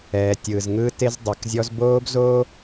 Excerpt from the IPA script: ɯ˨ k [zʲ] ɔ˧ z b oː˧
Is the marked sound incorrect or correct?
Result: correct